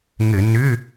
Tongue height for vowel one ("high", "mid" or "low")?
mid